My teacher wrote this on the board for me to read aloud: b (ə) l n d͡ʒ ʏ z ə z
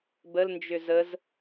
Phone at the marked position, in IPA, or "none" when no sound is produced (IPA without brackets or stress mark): ə